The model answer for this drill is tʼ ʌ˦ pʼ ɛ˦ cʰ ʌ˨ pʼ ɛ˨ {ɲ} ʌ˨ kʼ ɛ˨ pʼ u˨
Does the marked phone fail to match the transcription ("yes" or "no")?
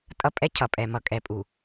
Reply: yes